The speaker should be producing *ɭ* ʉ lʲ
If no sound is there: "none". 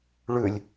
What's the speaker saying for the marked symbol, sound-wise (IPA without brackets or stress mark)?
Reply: ɭ